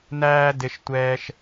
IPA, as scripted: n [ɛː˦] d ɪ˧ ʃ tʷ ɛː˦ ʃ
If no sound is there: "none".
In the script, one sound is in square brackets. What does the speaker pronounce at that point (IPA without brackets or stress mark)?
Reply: æː˦